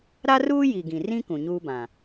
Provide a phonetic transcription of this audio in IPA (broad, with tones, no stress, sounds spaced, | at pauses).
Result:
ɾ a˦ r uː˦ j i˨ ɡ ĩ˨ r ĩ˦ k ũ˨ ɲ uː˦ b ã˨